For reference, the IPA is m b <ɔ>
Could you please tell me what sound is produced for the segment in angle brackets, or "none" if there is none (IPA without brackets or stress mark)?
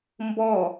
ɔ